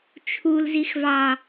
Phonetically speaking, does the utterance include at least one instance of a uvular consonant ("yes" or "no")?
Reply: no